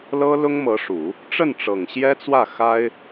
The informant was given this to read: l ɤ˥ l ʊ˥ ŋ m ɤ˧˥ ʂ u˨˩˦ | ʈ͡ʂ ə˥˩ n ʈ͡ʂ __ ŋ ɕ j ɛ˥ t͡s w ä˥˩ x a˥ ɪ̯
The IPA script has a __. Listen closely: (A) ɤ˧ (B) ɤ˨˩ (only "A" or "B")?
B